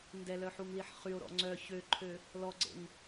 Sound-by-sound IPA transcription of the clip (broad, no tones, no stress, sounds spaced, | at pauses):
n d ɛ l œ ħ u ŋ l i ħ χ y o̯ ɾ ɔ̰ ŋ͡ǀ œ ç ø ǃʰ ø | l ɔ ɡ͡ǀ ḛ ŋ